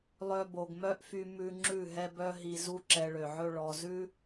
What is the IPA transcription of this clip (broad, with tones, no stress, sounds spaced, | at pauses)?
lˠ œ˧ b o˨ ɡ m œ˦ ʔ f y˧ m ʉ˧ ŋ͡ǁ ʉ˦˨ ɦ ɛ˦ b œ˦ ɦ i˧ z u˦ ǁ ɛ˧ ɭ ø˨ ʕ ɵ˦ ɭ ɔ˨ z ʉ˦